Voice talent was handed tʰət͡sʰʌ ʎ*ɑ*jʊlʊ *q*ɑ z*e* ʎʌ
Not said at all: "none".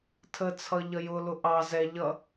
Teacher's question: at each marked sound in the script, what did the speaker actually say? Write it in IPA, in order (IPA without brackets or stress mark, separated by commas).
ʌ, ʔ, ɛ